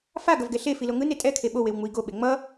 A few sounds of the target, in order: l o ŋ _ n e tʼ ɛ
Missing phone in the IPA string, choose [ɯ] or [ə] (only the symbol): ɯ